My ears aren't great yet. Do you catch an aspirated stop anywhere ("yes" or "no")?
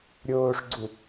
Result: no